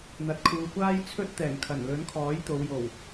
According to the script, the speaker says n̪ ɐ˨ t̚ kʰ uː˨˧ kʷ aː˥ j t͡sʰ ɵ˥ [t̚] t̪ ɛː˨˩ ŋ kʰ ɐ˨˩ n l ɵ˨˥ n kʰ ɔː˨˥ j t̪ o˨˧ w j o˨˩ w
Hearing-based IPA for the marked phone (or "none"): t̚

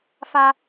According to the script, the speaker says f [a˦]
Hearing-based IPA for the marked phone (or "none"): a˦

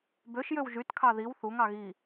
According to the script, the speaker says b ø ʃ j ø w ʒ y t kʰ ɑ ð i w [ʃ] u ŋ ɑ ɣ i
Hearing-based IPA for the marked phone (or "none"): θ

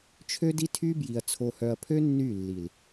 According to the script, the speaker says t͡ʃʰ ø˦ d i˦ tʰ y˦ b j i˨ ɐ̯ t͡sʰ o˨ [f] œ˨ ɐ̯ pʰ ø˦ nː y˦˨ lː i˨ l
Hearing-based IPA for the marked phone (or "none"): h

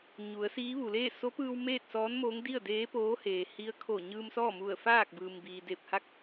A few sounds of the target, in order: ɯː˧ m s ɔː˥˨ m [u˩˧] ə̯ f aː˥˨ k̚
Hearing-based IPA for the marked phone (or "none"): u˧˩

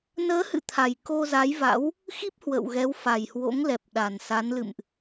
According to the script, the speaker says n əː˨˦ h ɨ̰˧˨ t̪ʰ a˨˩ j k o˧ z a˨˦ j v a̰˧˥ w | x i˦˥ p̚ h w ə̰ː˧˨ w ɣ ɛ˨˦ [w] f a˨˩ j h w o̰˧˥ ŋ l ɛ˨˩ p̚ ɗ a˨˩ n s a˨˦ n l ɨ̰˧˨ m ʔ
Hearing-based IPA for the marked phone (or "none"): w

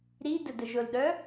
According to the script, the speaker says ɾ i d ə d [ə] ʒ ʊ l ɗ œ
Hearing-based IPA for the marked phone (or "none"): ə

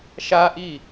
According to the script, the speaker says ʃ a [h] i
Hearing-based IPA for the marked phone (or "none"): ʔ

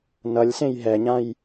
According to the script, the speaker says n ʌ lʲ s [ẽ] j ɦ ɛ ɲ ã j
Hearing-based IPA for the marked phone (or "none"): ẽ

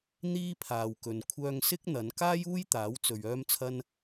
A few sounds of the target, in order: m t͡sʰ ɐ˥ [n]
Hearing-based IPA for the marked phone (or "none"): n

